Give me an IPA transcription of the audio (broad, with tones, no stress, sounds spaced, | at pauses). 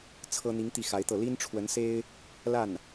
t͡sʰ ɤ˥ n̪ i˧˥ ŋ t̪ i˥˩ x a˧˥ ɪ̯ t̪ ɤ˥˩ l i˥ n ʈ͡ʂʰ w ə˧˥ n s e˥ ɪ̯ | l a˥˩ n